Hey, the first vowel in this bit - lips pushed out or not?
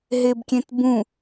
no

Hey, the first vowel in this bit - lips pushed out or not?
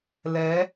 no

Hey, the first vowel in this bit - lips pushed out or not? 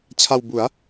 no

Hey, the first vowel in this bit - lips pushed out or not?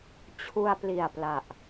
yes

